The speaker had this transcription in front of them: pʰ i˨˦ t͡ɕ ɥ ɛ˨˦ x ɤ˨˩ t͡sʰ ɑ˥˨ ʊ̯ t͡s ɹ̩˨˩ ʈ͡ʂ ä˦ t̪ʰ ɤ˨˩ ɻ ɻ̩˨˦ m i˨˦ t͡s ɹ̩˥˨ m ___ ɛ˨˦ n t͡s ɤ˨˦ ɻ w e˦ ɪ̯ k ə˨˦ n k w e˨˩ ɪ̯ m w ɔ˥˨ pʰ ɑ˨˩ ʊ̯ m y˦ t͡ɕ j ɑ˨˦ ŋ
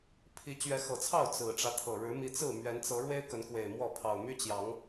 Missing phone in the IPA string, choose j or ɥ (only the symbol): ɥ